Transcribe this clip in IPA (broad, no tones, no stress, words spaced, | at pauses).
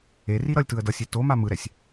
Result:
eri ɾʌlʲtɯə̯ dʌsʲe toma mɯɾɛsʲ